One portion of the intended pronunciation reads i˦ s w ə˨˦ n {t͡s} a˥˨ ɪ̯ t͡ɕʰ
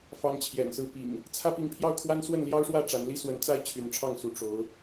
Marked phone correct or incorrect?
correct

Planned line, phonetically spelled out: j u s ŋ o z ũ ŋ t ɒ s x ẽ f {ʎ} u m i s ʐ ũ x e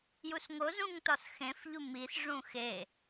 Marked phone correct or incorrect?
correct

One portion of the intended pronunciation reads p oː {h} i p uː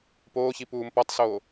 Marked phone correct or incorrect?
incorrect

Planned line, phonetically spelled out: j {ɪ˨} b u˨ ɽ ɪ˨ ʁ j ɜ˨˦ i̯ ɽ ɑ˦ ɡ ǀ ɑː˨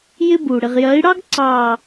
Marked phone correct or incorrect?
incorrect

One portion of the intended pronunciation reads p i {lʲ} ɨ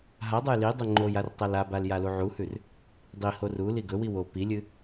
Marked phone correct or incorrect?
correct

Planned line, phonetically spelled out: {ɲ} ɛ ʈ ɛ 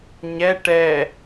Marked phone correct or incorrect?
correct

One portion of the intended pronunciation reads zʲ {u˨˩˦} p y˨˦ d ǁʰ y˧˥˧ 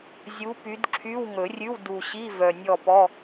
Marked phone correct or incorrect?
incorrect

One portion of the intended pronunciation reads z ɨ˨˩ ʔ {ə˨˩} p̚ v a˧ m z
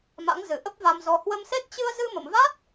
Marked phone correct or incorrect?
incorrect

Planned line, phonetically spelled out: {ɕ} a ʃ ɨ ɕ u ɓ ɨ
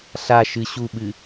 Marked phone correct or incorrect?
incorrect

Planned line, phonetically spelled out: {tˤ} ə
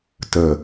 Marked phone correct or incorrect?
incorrect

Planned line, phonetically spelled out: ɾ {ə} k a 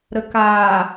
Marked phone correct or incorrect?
correct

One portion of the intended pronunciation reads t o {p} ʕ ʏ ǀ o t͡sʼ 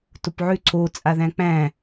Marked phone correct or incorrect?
correct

